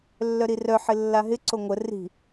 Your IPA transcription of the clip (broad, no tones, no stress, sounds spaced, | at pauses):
lː œ ɾ i r œ ħ ɪ lː a ɦ ɪ ǀ o ŋʷ ə r i̤